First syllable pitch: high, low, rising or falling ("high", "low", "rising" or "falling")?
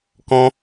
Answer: high